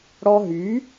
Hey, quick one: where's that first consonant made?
retroflex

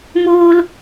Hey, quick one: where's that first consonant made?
lips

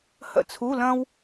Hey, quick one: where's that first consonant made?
throat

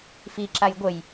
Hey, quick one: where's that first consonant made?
lips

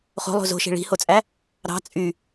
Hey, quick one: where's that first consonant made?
uvula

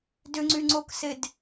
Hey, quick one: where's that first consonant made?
tongue tip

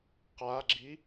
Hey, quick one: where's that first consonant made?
uvula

